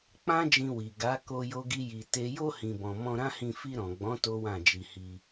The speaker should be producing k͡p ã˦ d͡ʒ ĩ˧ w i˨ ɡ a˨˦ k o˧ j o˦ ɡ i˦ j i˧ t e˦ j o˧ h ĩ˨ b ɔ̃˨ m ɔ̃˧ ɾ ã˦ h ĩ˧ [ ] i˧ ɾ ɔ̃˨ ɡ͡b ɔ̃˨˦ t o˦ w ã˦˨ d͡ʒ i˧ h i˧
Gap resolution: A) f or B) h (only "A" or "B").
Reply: A